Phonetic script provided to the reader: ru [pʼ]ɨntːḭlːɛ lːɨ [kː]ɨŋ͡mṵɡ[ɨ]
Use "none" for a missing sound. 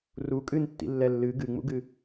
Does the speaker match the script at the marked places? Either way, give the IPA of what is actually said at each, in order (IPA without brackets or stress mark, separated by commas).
kʼ, ɡ, ɨ